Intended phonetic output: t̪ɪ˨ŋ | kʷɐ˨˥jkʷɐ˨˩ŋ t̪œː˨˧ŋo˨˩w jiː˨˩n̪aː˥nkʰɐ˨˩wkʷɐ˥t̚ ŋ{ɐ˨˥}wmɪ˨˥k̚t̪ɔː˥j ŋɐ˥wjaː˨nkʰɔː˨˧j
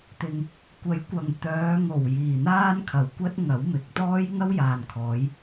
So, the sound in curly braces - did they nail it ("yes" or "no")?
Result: yes